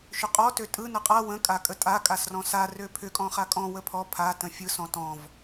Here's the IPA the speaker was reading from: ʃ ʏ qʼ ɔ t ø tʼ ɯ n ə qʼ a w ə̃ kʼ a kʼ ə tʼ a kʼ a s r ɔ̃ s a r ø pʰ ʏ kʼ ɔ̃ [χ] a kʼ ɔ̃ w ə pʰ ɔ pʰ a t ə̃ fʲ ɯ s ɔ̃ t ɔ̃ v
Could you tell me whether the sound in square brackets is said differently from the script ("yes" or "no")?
no